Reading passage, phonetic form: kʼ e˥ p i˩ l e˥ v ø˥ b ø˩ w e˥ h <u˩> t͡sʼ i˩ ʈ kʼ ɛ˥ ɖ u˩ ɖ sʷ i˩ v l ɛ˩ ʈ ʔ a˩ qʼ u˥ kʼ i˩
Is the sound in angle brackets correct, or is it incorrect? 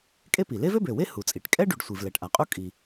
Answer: correct